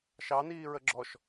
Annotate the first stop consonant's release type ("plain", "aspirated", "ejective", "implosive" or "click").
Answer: click